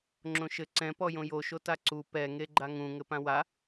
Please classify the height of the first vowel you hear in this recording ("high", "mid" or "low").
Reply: mid